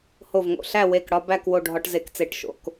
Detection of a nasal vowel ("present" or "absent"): absent